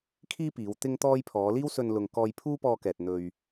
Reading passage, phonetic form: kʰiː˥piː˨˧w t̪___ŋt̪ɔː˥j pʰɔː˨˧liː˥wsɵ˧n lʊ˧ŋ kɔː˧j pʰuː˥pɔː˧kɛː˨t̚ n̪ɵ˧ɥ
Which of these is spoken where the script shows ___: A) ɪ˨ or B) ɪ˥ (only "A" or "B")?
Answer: B